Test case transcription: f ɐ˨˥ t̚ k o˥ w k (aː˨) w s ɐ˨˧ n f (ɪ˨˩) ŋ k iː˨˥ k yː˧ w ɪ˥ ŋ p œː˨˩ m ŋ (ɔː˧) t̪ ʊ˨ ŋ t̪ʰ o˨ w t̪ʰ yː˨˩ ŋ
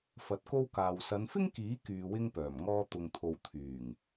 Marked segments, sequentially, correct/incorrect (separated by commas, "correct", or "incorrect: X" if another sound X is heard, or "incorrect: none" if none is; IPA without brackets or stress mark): correct, incorrect: ɪ˥, correct